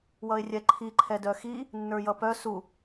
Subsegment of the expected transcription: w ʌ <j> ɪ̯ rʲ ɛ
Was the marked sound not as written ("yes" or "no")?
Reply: yes